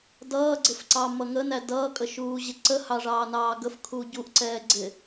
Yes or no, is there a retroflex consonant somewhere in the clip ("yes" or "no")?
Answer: yes